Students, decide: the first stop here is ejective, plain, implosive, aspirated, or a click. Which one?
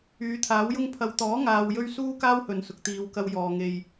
aspirated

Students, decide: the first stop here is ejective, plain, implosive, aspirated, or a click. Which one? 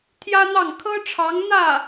aspirated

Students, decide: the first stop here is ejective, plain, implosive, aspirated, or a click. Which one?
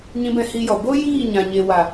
plain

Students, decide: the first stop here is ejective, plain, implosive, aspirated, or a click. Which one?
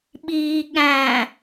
implosive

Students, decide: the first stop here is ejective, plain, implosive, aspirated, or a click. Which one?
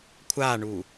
aspirated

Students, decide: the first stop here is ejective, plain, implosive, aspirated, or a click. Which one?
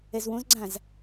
click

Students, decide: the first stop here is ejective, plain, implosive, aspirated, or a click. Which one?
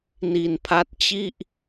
aspirated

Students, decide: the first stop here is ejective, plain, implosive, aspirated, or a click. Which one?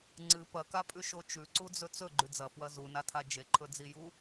click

